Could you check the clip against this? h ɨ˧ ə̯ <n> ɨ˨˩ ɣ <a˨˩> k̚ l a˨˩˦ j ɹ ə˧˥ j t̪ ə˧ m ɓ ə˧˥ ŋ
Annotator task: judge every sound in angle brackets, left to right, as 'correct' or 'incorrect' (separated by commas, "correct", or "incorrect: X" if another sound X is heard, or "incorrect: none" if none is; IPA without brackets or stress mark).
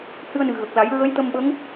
correct, incorrect: ə˨˩